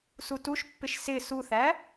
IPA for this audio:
s u t u ʃ pː ɪ ʃ s ɪ s u θ æ

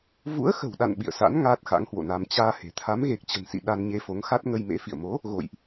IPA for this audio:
v ṵ˧˥ ə̯ x ə̤˨˩ w ɗ a̰˧˨ n ɓ ḭ˧˨ ə̯ s a̰˧˥ n ŋ aː˦˥ t̚ x a̰˧˥ ŋ h w o̰˧˨ n a˧ m t͡ɕ aː˧ h e̤˨˩ t̪ʰ a˨˦ m ɣ e˨˩ k̚ t͡ɕ ə̤˨˩ n s ḭ˧˨ ɗ a˧ n ɲ e˧ f o˨˦ ŋ x a˦˥ t̚ ŋ ə˧ j m ḛ˧˥ f ḭ˧˨ ə̯ m o˨˦ | ɣ o̰˧˨ j ʔ

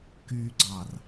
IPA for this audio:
k y ɡ͡ǀ ɑ r

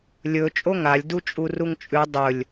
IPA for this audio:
lʲ ɵ t͡ʃʼ o ŋ a lʲ d u t͡ʃʼ u r u ŋ t͡ʃʼ ʉ dˤ ɵ lʲ

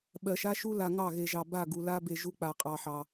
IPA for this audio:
ɓ ɜ˨ ʃ a˦ ʃ u˦ l a˨ ŋ ɑ˦˨ ɣ e˨ ʒ ɑ˨ b a˦˨ ɡ u˨ l a˦ b e˨ ʒ u˦ k͡p a˨ qʼ ɑ˨ ħ ɑ˨

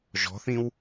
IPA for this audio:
ʒ ɔ̤ θ ĩ w

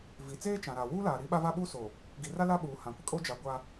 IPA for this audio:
v i˨ t͡s eː˦ t͡ʃ ã˨ ɾ a˨ w uː˦ l aː˨ ɾ i˦ ɓ a˦ v a˦ ɓ uː˦ s o˨ | ɡ i˨ r a˦ l a˦ ɓ uː˨ h ã˨ kʷ ɪ˦ kʼ o˦ d͡ʒ a˨ ɡʷ a˦

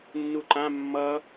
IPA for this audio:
nː u ǃ ã mː ʌ

